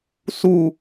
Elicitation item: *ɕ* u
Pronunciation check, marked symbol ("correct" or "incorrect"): incorrect